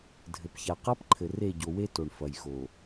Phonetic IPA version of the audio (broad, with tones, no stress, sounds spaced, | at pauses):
dʱ ɘ˨ p ç a˨ q a˦ p ǃʰ ɘ˨ r e˦˨ ɟ o˨ w e˦ t o˨ ɳ f ɐ˨ j x o˨